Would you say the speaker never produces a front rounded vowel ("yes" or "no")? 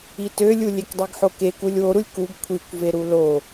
no